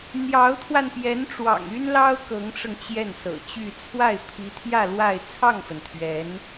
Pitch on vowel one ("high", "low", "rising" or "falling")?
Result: rising